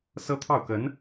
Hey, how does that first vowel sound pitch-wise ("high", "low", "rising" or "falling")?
high